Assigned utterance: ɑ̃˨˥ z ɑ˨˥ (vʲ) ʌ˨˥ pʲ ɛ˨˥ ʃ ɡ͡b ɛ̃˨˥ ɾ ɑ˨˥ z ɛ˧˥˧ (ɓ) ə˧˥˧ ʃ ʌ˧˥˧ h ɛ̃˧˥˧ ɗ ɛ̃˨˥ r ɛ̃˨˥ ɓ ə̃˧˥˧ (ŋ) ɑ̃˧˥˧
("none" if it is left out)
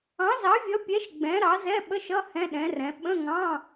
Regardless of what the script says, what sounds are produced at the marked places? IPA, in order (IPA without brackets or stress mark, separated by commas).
vʲ, ɓ, ŋ